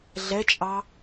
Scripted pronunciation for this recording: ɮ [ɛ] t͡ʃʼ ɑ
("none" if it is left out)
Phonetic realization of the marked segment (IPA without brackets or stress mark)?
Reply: ɛ